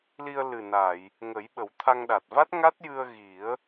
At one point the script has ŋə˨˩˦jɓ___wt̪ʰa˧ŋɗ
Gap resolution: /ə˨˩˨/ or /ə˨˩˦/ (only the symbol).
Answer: ə˨˩˦